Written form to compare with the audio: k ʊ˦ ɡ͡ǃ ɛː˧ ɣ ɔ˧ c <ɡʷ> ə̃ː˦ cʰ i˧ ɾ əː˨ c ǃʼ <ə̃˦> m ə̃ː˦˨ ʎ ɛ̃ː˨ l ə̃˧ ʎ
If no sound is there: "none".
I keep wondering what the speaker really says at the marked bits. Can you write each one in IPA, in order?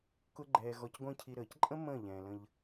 ɡʷ, ə̃˦

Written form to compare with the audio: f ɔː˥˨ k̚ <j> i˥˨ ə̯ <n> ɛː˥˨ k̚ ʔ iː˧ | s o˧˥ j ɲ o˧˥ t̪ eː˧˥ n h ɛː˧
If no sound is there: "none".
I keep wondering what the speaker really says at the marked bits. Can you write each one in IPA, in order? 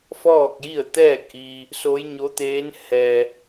j, t̪

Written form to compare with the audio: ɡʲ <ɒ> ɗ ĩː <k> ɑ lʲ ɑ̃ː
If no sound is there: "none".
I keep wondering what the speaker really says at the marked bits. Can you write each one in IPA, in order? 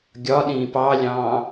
ɒ, p

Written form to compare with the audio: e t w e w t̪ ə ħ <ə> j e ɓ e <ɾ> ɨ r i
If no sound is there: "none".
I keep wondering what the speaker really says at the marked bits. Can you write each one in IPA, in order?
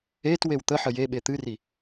ə, t̪

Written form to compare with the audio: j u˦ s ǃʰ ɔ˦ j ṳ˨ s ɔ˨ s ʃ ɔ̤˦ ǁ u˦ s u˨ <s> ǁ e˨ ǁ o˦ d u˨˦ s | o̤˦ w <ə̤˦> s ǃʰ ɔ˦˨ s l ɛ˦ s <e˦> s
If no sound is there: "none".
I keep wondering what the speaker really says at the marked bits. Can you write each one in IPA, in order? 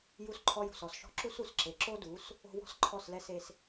s, ɔ̤˦, e˦

